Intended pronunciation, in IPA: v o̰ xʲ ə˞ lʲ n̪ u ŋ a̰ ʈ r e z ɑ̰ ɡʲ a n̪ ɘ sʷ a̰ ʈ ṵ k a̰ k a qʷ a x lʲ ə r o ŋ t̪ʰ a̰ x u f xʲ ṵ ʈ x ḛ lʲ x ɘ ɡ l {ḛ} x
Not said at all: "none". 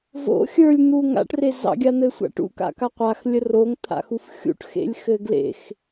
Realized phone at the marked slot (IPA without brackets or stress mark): ḛ